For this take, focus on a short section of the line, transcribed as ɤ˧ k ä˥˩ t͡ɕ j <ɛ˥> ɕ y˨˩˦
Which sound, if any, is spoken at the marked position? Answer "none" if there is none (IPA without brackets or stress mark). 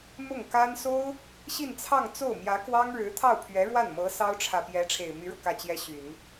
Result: ɛ˥